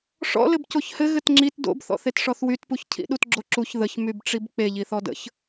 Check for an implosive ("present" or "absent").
present